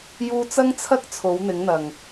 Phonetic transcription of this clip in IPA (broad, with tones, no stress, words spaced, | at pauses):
juː˧t͡sɐ˥ŋt͡sʰɐ˥k̚ t͡sʰo˨˥wn̪ɪ˨˥ŋn̪ɐ˨˩ŋ